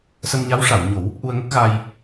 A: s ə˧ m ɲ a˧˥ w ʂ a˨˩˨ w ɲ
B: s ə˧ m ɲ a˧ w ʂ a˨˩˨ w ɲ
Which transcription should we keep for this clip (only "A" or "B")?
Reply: A